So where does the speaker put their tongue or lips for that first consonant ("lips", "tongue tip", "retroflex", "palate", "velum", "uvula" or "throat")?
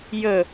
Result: palate